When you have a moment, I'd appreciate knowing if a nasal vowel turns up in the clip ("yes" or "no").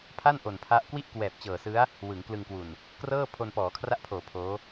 no